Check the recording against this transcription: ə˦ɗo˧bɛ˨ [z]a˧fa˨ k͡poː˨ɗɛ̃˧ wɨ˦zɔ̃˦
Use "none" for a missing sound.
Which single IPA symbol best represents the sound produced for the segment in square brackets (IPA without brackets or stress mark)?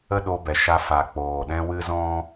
ʃ